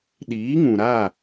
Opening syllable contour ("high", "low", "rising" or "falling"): rising